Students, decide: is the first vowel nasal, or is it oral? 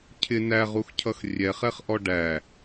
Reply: oral